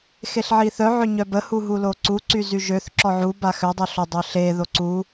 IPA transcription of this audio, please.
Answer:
x e ɬ ʕ i θ œ ʕ ø ɲ œ b ə h u ɦ u l o ǀ u ǀ y z y ʒ ø θ ǁ ɔ ʕ u b a x ø dˤ o ɬ o dˤ ø ɬ e ð o ǀ u

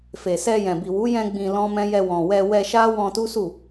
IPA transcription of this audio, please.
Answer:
f e˨ s ɛ˧ j ɛ̃˨ b i˨ w u˨˦ j ɛ̃˧ ɡ͡b ĩ˧ l ɔ̃˦ m ɛ̃˦ j ɛ˧ w ɔ̃˨ w ɛ˧ w ɛ˧ ʃ a˦ w ɔ̃˧ t u˦ s u˦˨

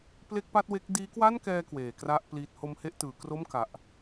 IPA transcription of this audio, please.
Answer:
p l e˥˩ k̚ p a˥˩ t̚ w e˦˥ k̚ d iː˦˥ k w a˥˩ n k ɛː˧ k w eː˩˦ k r a˥˩ ʔ p l iː˦˥ t̚ h o˦˥ m h e˦˥ ʔ t ɯː˩˦ k r o˥˩ m k a˨˩ ʔ

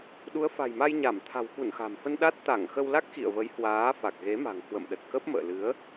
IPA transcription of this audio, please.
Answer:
ɗ u˨˦ ə̯ f a̤˨˩ j m a˧ j ɲ a˧˩ m t̪ʰ a̤˨˩ w f u˧˩ n x a̤˨˩ m f ə˧ n ɗ a˦˥ t̚ t̪ a˧˩ ŋ x ə˧ w l a˦˥ k̚ x ḭ˧˨ ə̯ v ə˨˦ j h w aː˨˦ f a˨˩ k̚ ɣ e˨˦ m a̤˨˩ ŋ k w ə̰˧˨ m ɗ ə˨˩ t̚ k ə˦˥ p̚ m ə̰ː˧˨ l ɨ˨˦ ə̯

